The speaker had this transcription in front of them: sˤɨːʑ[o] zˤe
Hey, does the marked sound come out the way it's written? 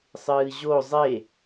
yes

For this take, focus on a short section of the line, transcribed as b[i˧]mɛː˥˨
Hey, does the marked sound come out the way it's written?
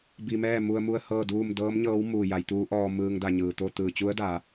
yes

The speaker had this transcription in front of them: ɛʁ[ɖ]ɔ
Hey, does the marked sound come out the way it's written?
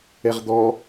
no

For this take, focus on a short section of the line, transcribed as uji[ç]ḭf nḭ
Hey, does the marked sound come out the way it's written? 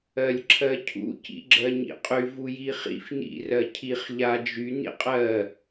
no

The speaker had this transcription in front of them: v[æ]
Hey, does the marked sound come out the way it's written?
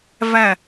yes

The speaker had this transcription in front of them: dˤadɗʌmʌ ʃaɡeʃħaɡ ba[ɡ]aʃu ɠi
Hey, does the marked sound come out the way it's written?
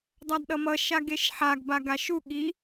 yes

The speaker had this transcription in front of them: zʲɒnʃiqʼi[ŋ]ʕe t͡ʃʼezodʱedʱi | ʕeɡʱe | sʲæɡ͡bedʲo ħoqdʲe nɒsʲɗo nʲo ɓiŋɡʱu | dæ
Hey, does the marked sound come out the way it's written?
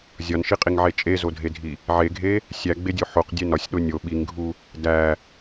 yes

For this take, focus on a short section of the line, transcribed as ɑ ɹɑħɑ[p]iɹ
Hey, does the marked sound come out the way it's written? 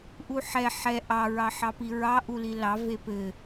yes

